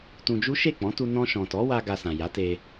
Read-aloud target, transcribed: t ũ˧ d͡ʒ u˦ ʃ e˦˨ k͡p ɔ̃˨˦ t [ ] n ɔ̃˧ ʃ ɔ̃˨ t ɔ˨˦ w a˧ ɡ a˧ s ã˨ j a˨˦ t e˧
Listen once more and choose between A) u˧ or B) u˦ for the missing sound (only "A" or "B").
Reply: A